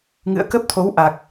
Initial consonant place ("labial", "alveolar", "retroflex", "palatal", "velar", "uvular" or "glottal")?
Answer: velar